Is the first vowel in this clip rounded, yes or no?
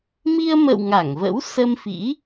no